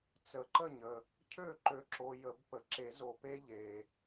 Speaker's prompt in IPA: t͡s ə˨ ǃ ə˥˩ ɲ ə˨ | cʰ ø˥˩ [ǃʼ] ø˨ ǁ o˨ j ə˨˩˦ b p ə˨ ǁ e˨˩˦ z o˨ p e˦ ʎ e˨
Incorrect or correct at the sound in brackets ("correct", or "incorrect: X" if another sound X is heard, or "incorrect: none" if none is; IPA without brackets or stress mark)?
incorrect: ǃ